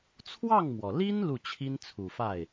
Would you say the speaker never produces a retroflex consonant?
yes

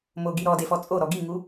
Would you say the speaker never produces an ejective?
no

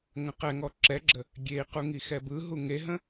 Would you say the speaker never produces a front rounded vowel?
yes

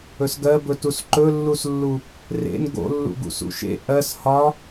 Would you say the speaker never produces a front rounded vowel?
yes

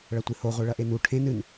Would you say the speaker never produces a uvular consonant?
no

